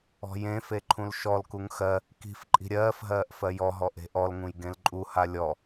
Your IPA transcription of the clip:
ɔ̤ j ẽ f e ǃʰ ũ l ʃ ɔ l k u ŋ x ɜ | k i̤ f ǃʼ i̤ ɾʲ ɜː f ɦ ɜː ʔ f ɜ j ɔ ɦ ɔ ʔ e̤ ʔ ɔ l ŋ ũ j ɡ ẽ l ǃʼ u h a lʲ ɔ

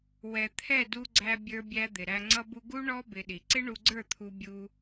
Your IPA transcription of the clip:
w ɛ˨ t̪ʰ ɛ˦˨ d u˧ ɡ͡ǀ æ˧ bʲ ə˞˧ bʲ æ˧ d̪ ɪ˨ ɾ æ˧ ŋ͡ǀ ʌ˧ b u˧ ɡ u˦ ɳ ɔ˦ b ɪ˧ ɗ i˨ ǀ ɪ˦ ɳ u˧ ɡ͡ǀ ə˞˦˨ t̪ʰ u˧ bʲ u˧

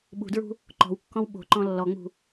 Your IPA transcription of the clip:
ɓ ṳ d ɹ ṳ | ǃ ɔ̤ w kː ɔ̃ w ɓ o̤ ǃ ɔ̃ lː ɔ ŋ͡m ṳ

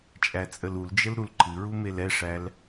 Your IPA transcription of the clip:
t͡ʃʼ æ t͡sʼ ə l u l d͡ʒ ə l ɾ u l ǃʰ ɨ ɹ u m e l ɛ ʂ æ l

